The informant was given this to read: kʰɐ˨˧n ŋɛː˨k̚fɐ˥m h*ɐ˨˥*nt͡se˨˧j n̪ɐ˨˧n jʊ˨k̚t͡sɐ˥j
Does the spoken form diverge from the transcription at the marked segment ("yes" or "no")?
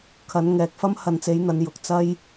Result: yes